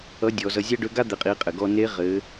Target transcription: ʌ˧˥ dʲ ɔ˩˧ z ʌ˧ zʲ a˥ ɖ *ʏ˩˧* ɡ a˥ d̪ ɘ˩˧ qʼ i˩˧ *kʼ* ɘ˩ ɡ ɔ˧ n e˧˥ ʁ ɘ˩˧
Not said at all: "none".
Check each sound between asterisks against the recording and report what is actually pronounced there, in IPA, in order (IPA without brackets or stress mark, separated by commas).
ʏ˧˥, qʼ